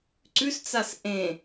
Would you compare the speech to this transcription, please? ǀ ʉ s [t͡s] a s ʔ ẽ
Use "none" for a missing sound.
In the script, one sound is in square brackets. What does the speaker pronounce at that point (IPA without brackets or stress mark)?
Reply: t͡s